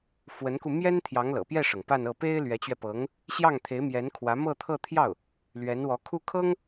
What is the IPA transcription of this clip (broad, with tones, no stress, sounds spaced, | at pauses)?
f w ə˧˥ n k u˧ m j ɛ˥ n t̪ʰ j ɑ˧˥ ŋ l ɤ̰˨˩ p j ɛ˥˩ ʂ ɤ˩ ŋ p a˥˧ n ɤ˥˩ p e˥ ɪ̯ l ɥ ɛ˧˥ t͡ɕ ɥ ɛ˧ p ɤ˧˥ ŋ | ɕ j ɑ˥˩ ŋ t̪ʰ e˧˥ ɪ̯ m j ɛ˧˥ n kʰ w ä˧˥ m ɤ˥˧ t̪ʰ ɤ˥˧ t̪ʰ j ɑ˥˩ ʊ̯ | l ɥ ɛ˧˥ n w ɔ˧˥ kʰ u˥ kʰ ɤ˥ ŋ